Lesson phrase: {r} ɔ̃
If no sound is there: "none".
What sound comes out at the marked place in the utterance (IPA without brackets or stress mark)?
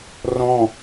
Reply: r